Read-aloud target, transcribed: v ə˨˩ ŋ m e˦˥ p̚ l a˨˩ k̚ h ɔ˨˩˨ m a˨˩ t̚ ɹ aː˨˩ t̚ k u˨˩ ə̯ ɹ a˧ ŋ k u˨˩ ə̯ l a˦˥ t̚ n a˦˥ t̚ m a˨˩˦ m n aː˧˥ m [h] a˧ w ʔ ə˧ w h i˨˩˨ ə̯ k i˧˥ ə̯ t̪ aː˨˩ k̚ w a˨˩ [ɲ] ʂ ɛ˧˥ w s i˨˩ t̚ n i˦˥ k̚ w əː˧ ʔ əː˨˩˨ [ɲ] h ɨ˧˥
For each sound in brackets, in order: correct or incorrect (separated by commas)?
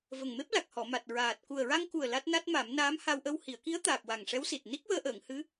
correct, incorrect, incorrect